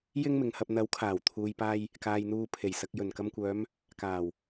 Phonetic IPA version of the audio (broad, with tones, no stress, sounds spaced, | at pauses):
j ɪ˥ ŋ m ɪ˨ ŋ h ɐ˧ p̚ n̪ ɐ˨˥ w kʰ aː˨˩ w t̪ʰ uː˨ j p aː˧ j | k aː˨ j n̪ uː˧ pʰ e˨˩ j s ɐ˨ k̚ j ɵ˨˩ n k ɐ˧ m kʷ œː˨˧ m | k aː˨˩ w